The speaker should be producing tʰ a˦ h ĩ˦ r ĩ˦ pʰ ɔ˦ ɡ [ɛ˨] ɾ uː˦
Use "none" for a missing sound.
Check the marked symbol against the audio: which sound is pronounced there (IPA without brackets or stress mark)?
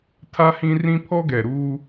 ɛ˨